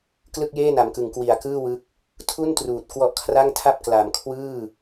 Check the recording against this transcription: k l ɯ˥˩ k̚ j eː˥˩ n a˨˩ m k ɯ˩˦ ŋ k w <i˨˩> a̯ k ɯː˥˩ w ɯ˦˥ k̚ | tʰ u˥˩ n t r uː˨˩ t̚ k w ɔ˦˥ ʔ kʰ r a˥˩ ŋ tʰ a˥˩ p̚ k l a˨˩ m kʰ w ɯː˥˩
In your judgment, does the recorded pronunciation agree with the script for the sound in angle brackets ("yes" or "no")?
yes